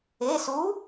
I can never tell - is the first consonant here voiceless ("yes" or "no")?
yes